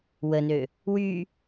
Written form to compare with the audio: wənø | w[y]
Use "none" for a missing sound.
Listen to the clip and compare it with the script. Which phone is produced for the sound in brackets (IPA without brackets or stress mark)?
y